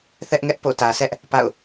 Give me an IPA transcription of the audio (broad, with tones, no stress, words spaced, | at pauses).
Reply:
θɛ˦ʔŋɛ˦ʔ po̰˦˨tä˨sɛ˦ʔ | pa̰˦˨ʊ̯